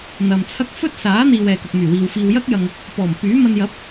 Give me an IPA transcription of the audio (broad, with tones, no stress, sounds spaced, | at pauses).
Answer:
n̪ ɐ˨ m t͡sʰ ɐ˥ k̚ f ɵ˥ t̚ s aː˨˥ n̪ iː˨ w ɛː˨ k ɐ˨ k̚ m yː˨˩ w iː˨ w f iː˨ w j ɐ˥ k̚ j ɐ˨ ŋ | p ɔː˨˩ m p yː˨˥ m ɐ˧ n j ɐ˨˥ p̚